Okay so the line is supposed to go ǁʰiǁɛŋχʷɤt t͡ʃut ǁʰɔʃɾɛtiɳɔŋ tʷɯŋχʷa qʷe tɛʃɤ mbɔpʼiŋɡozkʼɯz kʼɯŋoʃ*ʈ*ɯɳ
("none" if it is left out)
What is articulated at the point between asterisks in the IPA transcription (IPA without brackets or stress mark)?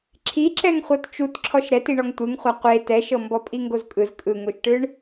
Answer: ʈ